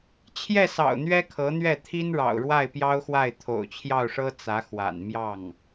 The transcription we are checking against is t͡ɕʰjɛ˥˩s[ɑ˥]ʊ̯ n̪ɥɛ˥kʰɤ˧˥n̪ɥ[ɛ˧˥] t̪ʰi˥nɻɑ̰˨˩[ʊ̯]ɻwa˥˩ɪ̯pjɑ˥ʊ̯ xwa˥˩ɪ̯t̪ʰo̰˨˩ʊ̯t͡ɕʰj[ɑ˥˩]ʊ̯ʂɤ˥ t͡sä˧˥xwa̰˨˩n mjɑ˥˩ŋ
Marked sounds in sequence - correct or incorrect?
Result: incorrect: ɑ̰˨˩, incorrect: ɛ˥˩, correct, correct

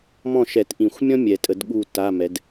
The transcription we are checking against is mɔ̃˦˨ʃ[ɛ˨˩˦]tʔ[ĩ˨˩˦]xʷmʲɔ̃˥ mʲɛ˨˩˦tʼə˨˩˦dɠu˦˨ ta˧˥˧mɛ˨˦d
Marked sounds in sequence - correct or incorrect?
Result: correct, correct

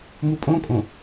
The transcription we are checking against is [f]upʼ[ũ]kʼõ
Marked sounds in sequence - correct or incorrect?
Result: incorrect: m, incorrect: õ

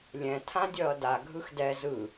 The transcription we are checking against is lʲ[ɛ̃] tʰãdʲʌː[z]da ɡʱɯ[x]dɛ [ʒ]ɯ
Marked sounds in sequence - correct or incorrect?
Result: correct, incorrect: none, correct, incorrect: z

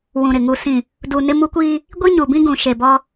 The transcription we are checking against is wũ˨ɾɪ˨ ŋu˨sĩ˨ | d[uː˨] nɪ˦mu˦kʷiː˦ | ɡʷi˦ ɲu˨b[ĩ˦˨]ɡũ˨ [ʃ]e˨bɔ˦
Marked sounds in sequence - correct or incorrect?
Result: incorrect: u˨, incorrect: ĩ˦, correct

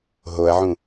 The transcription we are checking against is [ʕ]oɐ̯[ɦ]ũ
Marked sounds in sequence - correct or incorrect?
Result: incorrect: ɦ, incorrect: ʕ

